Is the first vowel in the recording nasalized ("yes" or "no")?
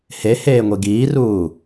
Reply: no